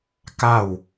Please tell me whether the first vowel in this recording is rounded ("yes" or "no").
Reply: no